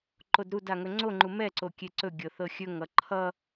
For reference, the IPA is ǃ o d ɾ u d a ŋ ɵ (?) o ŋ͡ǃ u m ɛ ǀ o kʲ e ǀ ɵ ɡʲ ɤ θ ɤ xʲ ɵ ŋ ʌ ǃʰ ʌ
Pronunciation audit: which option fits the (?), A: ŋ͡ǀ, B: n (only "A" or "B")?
A